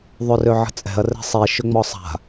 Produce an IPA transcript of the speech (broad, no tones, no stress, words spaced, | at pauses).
ðˤørøʕə̤t͡sʼɛ̤ɐ̯ rɛ̤sˤi ʃʏŋ͡mɔsˤa̤